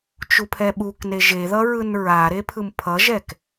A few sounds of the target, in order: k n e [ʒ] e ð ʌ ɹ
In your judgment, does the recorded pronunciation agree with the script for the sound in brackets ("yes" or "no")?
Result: yes